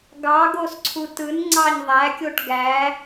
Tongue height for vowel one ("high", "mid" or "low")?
low